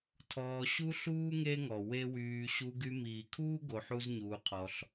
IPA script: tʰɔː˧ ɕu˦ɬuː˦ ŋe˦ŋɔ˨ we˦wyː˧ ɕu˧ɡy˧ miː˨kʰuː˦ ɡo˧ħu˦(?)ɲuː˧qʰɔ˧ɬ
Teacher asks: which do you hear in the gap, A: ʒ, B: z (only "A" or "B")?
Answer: B